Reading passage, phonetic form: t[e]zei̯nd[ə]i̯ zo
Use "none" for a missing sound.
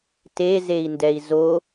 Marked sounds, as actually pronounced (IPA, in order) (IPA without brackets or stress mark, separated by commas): e, ɛ